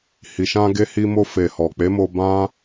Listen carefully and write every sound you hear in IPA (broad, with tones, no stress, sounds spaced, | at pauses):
h i˨ ʃ ã˧ ɡ e˧ h i˧ m o˧ f e˨ h ɔ˨ k͡p e˨˦ m o˧ b ã˦